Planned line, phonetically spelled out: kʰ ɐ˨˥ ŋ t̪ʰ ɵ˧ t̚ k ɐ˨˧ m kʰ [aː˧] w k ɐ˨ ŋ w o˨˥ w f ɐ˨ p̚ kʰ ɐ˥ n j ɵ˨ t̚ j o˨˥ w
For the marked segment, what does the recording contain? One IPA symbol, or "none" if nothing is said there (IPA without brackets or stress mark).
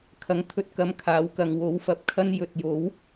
aː˨˥